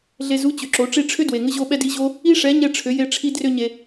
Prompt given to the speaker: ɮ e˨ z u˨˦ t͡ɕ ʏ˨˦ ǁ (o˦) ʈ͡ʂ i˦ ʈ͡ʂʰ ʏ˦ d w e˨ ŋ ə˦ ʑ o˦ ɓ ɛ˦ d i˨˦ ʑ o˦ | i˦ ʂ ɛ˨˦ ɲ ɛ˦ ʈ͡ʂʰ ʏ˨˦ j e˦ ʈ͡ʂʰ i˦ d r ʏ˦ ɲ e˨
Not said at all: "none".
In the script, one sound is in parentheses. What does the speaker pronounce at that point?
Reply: o˨˦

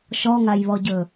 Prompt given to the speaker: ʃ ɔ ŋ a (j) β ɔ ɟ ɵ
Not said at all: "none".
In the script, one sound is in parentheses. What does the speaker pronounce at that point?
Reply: j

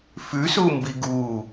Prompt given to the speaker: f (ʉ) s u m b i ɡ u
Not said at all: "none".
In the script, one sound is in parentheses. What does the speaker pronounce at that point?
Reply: ʉ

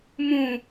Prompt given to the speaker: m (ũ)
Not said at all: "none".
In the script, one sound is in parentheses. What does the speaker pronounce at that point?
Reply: ũ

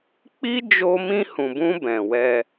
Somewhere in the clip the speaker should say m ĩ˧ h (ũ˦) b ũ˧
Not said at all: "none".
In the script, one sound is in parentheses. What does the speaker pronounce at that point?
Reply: ũ˨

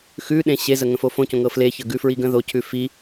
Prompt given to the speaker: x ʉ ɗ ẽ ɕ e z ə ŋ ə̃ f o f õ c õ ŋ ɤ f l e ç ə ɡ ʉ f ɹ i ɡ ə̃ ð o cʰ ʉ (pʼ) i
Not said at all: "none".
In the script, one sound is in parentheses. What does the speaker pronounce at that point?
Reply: f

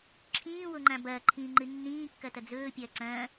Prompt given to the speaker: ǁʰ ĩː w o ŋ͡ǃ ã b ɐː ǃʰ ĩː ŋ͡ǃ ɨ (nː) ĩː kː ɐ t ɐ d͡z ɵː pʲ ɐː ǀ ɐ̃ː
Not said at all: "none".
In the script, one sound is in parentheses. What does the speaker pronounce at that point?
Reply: nː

